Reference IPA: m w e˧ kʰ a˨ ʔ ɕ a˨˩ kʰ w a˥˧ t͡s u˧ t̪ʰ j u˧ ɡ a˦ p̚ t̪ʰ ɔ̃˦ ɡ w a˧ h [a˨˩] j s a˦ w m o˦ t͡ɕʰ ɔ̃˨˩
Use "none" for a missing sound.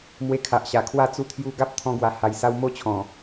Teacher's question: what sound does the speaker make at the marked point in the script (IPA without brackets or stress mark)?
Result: a˧